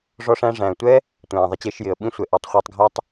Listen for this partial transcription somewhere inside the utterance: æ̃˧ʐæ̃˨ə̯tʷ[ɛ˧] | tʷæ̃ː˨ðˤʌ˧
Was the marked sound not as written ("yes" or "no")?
yes